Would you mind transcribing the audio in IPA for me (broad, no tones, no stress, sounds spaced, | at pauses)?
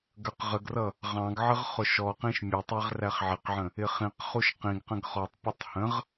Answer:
ɡ ə˞ q ʁ ə ɡ r ʌ | ʁ ɑ̃ ɡ ʕ ə ʁ χ ʊ ʃ ɔ q ĩ ʃ mʲ ʊ tˤ ɛ ʁ r æ χ ʕ ɪ q ʕ ə̃ | ɪ χ ĩ q χ u ʃ q ĩ ɡ q ə̃ ɡ χ ɔ tˤ pʲ ə tˤ h ə̃ ʁ